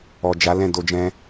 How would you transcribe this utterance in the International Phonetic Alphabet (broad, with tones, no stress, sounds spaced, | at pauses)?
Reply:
ɔ˨ d͡ʒ a˨˦ l ɛ̃˦˨ d o˧ d͡ʒ ɛ̃˧